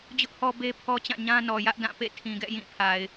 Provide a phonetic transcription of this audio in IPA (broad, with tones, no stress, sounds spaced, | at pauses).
d͡ʑ ʊ˦ ʔ h ɔ˦ b e˦ pʰ ɔ˦ t͡ɕ ã˦˨ ɲ ã˦ n ɔ˨ j ä˦ ʔ d ã˦˨ p ḛ˦˨ tʰ ĩ˨ ɡ ɛ̰˦˨ j ĩ˦˨ pʰ a˨ ɪ̯